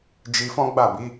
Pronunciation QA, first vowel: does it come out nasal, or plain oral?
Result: oral